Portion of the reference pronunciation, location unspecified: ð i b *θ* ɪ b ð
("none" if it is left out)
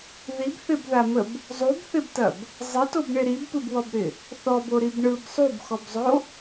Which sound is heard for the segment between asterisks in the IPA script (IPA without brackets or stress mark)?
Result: θ